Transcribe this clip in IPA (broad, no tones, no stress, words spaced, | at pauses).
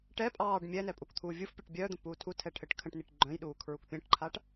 ʈɛ pʼɑːɖ mʲɛnɛ pʼukt̪ʰuːvʲufpʲœʈ bʲœːd̪ə̃ puːtʰutʰɛ ʈʰɘʈkʰə̃ʈniʈ ɡ͡ǃœ̃jɗuː kʰɹukpʲə̃ːʈǃʰaʈ